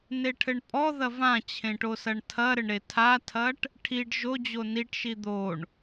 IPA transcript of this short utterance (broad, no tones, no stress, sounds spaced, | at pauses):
n e ʈʰ ɘ ɳ pʼ ɔ ð ɐ v ã t͡ɕʰ ẽ ʈ o s ɐ ɳ tʰ ɐ ɾ ɘ ɳ ɾ e tʰ a tʰ ɐ ʈ | ʈʰ i ɖ ʒ o d͡ʑ o n i ʈ ʃ i d̪ o ɳ